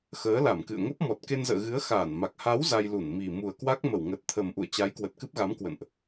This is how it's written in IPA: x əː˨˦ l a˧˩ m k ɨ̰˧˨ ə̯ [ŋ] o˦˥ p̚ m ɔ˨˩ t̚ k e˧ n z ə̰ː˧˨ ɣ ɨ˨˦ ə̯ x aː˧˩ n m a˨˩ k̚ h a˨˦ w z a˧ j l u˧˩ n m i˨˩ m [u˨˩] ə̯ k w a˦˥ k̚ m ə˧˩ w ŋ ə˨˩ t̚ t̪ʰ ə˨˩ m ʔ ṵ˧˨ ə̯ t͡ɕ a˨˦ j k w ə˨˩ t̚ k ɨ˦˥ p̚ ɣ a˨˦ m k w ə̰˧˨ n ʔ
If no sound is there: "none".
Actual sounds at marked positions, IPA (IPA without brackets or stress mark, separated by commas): ŋ, u˨˩